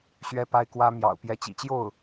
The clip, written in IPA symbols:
ɕ ɥ ɛ˥ p a˥ ɪ̯ k w ä˥ m j ɑ̰˨˩ ʊ̯ p j ɛ˧˥ t͡ɕ ḭ˨˩ t͡ɕ j o˥˩ ʊ̯

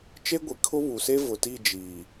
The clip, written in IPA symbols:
t͡ʃ e˦ ɡʷ i˨ kʰ ʊ˦ β u˨ s e˦ v ʊ˨ t i˦˨ d͡ʒ iː˨

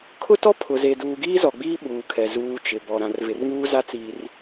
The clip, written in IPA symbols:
kʰ ʊ˦ t ɔ˦ pʰ ʊ˨ z e˨ d uː˨ ɡ iː˦ z ɔ˨ ɡ͡b iː˦ ɓ uː˨ kʰ ɛ˨ z uː˦ t͡ʃ ɪ˨ b ɔ˨ ɾ ã˨ r v ɪ˨ r ŋ uː˦ z a˦ t͡s iː˨ r

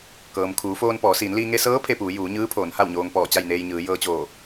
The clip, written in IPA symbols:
k ɤː˩ m kʰ uː˩˧ f oː˧ n p ɔː˩˧ s iː˩˧ n l iː˧ ŋ e˧ s ɤː˧˥ pʰ e˧ p uː˩˧ j uː˩˧ ɲ ɯː˧˥ pʰ oː˩˧ n h a˥˨ w ɲ oː˧ ŋ p ɔː˧˩ t͡ɕ a˥˨ j n eː˧ j ɲ ɯː˩˧ j ɤː˧ t͡ɕ oː˧˩

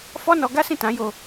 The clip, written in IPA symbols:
f ɔ˦ n ɔ˧ ɡ a˦ s ĩ˦˨ t ã˨˦ j o˧

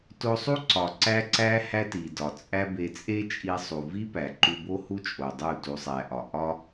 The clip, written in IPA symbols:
t o˧ sˤ u˦ ǀ ɒ˨ ǀ æ˦ ǀ æ˦ h æ˦ t i˨ d ɒ˨ t͡sʼ æ˦ b e˧ t͡sʼ e˦ t͡ʃʼ i˧ sˤ u˨ v i˦ p æ˨ ǃ u˧ b o˦ h u˦ t͡ʃʼ o˨ dˤ u˦˨ t u˧ sˤ æ˧ ʔ ɒ˧ ʔ ɒ˦

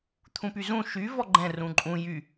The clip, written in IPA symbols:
t̪ʰ ũ p y z ũ ʃ y v ɔ ɡ͡ǃ ɛ̃ r ũ ǃʼ ũ j y

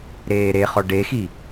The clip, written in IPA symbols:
ɾ eː ɾ e χ ɔ ɖ e x i

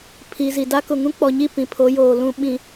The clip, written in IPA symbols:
pʰ i˨ z i˨ d a˦ k ʊ˨ ŋ ũ˦ k͡p ɔ˨ ɲ i˦˨ p ĩ˨ pʰ o˨˦ j oː˨ l ũ˨ ɓ ĩ˨

